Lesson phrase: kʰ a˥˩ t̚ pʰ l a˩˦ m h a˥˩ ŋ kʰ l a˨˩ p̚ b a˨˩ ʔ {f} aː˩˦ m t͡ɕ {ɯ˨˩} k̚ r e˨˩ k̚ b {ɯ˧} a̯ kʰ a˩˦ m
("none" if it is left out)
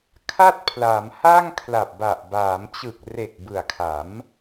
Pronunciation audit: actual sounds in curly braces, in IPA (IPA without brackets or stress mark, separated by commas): b, ɯ˨˩, ɯ˨˩